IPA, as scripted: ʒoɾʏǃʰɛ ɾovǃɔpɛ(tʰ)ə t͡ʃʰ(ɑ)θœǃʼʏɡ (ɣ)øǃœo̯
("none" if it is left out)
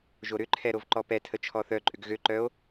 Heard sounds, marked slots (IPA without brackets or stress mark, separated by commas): tʰ, ɔ, ɣ